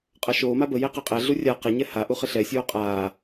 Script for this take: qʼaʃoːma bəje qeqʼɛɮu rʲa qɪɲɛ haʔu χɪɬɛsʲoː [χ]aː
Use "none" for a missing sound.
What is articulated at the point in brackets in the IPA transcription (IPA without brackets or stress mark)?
qʼ